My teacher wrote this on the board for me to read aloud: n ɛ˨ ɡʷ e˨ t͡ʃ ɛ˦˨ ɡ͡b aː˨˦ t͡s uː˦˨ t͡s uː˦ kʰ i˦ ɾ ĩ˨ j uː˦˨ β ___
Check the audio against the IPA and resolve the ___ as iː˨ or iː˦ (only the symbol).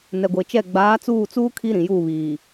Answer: iː˨